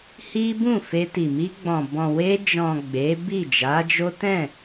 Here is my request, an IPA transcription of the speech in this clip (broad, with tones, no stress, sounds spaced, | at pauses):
h i˦ b ũ˦˨ f e˧ t i˨ m i˧ ɡ͡b ɔ̃˨ b ɔ̃˨ w e˧ d͡ʒ ɔ̃˨ ɡ͡b e˨˦ b i˦˨ d͡ʒ a˨˦ d͡ʒ o˦ t ɛ̃˦˨